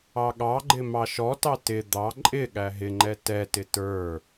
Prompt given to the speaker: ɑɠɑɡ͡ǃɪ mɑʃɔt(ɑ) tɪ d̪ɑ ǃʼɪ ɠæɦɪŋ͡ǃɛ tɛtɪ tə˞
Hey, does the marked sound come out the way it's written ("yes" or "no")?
yes